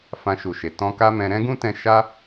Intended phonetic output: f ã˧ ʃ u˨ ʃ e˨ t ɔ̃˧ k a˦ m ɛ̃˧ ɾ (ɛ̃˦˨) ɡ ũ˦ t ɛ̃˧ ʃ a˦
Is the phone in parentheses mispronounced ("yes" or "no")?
yes